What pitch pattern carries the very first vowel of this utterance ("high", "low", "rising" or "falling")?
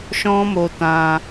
high